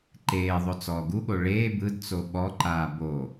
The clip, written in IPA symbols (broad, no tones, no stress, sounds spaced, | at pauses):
ǃ eː ðˤ o t͡s ɔː ɡ u ɠ o ɭ eː b ɯ d t͡s o ɓ ɔ ǃ aː b o